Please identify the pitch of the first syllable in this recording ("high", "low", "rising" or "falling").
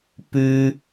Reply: high